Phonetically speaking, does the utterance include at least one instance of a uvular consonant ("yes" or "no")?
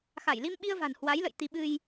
no